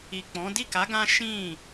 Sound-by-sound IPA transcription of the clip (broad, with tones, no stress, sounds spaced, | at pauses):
i˨ k͡p ɔ̃˨˦ d i˦˨ k a˨˦ ɡ ã˦ ʃ ĩ˦˨